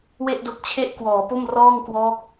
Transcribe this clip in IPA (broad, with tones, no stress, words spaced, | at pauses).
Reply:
we˥˩ʔdo˦˥k̚t͡ɕʰe˥˩ʔkwɔː˩˦ po˥˩m rɔː˥˩ŋkwɔː˦˥k̚